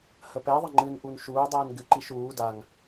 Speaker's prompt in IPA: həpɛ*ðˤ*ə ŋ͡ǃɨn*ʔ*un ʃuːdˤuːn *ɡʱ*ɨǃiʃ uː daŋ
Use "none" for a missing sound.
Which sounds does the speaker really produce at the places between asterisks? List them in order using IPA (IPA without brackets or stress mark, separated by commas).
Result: ðˤ, ʔ, ɡ